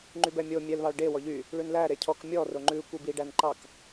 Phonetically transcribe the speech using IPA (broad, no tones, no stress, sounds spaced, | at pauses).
ŋ͡ǃ y b ɛ mʲ o mʲ ɛ l β ɑ ɭ ɖ e w ɔ ʎ y | ɭ ʉ n l æ ɾ e cʰ ɔ k mʲ ɔ r o ŋ͡ǃ ʉ kʷ i b i ɖ æ n ǃ ɑ k